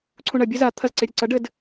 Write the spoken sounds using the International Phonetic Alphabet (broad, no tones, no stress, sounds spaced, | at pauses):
ǀʰ ũ ɳ ɐ bʲ ɘ z a t̪ʰ ɐ z ǀ e ɾʲ ɘ ǀ ɐ ɖ ɘ d